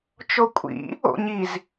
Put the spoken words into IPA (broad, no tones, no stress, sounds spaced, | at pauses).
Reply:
t͡ʃ o kʷʼ ḭ | o̰ ɲ i z